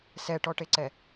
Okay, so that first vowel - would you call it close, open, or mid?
mid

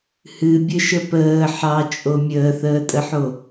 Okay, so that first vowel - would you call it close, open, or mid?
close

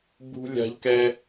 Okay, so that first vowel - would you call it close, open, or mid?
close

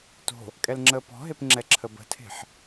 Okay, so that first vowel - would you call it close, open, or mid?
mid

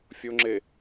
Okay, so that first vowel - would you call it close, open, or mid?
mid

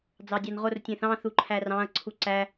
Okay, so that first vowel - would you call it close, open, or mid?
open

